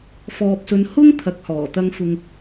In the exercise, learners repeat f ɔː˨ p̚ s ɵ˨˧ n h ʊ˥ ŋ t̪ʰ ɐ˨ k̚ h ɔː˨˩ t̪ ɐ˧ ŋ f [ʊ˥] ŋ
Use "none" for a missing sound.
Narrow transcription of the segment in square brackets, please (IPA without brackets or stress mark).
ʊ˨